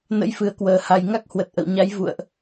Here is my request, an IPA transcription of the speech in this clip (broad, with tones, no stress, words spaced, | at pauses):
nə̰˧˥jfɨ˧˩ə̯kwəː˨˩ha˨˩j ŋa˦˥k̚hwə˨˩t̚ʔə̰˧˨wɲa˨˦j vṵ˧˨ə̯ʔ